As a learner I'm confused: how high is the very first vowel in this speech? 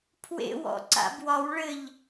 mid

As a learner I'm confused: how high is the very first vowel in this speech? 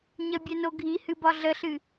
mid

